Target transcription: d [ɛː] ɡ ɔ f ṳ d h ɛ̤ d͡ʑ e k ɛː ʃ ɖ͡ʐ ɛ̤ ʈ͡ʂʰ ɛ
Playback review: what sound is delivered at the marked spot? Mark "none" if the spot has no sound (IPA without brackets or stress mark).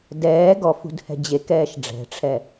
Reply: ɛː